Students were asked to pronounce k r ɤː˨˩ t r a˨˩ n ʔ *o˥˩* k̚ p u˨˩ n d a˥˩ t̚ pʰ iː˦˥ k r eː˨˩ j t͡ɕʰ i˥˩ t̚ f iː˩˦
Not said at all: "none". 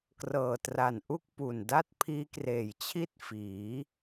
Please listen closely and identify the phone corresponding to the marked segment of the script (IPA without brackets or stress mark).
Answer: u˥˩